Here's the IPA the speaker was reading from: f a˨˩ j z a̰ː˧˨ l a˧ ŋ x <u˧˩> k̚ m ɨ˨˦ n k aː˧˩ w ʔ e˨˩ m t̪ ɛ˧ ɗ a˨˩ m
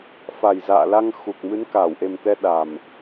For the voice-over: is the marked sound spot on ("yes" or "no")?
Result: no